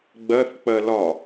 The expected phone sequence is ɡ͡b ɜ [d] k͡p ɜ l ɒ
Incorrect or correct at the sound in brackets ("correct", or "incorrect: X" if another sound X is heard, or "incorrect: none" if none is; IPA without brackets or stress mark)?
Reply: incorrect: θ